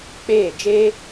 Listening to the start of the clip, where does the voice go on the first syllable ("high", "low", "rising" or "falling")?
falling